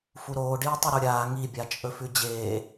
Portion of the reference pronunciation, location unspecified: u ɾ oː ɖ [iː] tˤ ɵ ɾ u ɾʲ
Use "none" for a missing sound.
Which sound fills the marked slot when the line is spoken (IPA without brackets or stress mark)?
iː